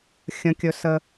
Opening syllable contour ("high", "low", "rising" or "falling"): rising